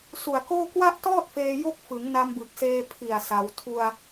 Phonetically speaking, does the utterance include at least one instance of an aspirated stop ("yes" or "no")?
yes